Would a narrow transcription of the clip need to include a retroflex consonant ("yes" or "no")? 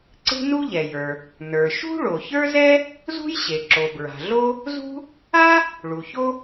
yes